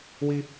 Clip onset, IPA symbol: w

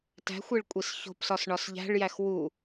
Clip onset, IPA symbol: t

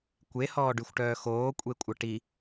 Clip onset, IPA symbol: kʷ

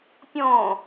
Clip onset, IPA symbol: pʲ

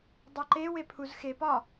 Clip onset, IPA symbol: dˤ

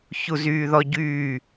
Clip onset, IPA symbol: ç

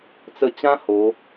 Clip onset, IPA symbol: t͡s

